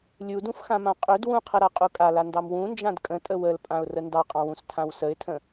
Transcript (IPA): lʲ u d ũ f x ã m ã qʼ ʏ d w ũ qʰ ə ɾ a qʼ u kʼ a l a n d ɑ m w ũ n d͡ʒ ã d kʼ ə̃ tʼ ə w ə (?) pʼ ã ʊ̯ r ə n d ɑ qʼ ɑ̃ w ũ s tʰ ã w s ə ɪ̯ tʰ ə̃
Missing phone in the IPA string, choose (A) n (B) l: B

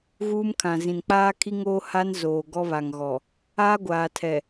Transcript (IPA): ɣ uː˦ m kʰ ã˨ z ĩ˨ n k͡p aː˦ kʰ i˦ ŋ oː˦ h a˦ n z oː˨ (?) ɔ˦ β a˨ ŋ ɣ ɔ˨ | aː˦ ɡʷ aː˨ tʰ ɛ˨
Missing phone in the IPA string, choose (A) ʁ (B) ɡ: B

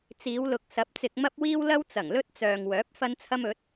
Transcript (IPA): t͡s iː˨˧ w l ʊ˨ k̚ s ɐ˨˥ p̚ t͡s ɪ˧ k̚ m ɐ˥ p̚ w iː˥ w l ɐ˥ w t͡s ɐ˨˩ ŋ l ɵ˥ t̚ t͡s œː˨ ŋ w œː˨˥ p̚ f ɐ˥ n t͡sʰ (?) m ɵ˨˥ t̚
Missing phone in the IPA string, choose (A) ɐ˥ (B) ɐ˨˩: A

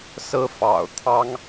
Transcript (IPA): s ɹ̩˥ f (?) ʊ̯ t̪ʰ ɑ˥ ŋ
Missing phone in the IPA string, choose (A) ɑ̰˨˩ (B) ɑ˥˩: A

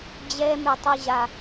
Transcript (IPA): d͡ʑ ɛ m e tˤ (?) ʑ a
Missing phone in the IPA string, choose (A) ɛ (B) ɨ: B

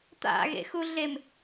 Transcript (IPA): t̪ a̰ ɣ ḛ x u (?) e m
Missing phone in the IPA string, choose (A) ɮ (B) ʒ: A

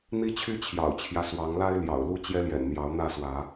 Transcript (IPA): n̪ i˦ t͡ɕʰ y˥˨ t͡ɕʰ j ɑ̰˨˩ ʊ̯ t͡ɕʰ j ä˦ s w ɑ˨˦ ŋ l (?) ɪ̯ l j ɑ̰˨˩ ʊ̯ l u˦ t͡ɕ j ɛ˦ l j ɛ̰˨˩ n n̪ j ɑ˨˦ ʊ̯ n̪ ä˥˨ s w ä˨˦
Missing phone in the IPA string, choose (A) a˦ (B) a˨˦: A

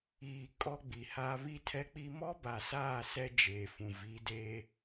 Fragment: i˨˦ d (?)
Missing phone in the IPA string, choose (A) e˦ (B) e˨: A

